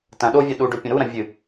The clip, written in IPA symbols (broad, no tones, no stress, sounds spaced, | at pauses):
t ɐ̃ ɗ o vʲ a ɗ u ɖ ɵ pʲ ɐ̃ ɾ u ɾ ɐ̃ vʲ ɨ